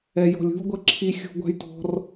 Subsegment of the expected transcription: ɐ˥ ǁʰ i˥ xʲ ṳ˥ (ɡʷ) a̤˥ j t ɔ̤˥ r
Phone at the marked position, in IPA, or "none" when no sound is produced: ɡʷ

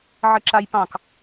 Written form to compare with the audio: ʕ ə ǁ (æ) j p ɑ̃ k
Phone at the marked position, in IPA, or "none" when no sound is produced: a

